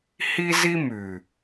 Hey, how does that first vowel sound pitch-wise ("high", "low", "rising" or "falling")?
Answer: high